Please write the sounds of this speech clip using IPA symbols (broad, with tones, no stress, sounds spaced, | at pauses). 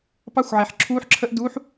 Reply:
p ɑ˦˥ xʷ ʕ ɛ˩ ħ ǁʰ uː˦˥ ħ ǁʰ ə˦˥ ʔ d u˨˦ ħ